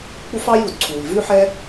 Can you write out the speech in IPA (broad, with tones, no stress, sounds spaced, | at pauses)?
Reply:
k͡p u˥ f ɑ˥ j u˩ d ǀʰ u˩ i̯ v ʉ˥ ħ ɛ˥